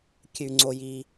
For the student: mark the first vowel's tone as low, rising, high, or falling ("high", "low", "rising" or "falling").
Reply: low